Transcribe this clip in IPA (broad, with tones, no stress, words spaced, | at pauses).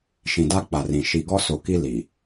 ʃĩ˨da˦k͡pa˨rĩ˨ ʃi˨ɡɔ˦so˨ki˦ li˨